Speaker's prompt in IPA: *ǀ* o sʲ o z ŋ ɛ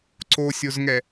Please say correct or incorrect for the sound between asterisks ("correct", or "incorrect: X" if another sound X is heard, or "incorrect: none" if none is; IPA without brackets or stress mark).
correct